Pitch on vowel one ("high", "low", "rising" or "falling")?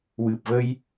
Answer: low